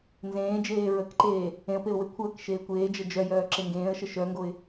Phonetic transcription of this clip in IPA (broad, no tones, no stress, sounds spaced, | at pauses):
n z ẽː d͡ʒ eː ɹ ə k ǃ eː | ẽ ə̯ p e ʊ̯ w e kʷʰ əː k ʃ eː kʷ eː d͡ʒ ə d͡ʒ œ j œː ǁ e ŋ ɡ ẽː ə̯ ʃ ə ʃ œ ŋ ɡ o ɪ̯